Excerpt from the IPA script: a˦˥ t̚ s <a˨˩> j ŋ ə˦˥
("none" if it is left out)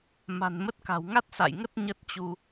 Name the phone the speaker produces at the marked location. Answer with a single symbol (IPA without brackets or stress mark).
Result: a̰˧˨